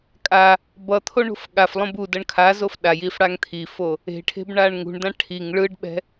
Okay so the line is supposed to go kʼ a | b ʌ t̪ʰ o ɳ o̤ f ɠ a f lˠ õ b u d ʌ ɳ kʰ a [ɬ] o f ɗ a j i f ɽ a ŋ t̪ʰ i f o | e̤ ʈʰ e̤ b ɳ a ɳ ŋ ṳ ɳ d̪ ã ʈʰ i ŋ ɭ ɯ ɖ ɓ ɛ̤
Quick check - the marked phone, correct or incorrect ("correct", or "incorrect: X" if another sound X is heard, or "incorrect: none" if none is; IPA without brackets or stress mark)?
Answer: incorrect: z